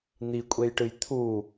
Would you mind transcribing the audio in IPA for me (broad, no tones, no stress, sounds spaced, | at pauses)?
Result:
n̪ i kʷʼ e j ʈ ɨ j t̪ʰ u